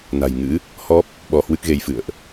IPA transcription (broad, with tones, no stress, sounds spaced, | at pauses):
n a̤˨˩ j ŋ ɨ̰˧˥ | h ɔ˦˥ p̚ | ɓ ɔ˧ h w ɨ˦˥ k̚ ɣ e˧ j f ɨ̰˧˨ ə̯ ʔ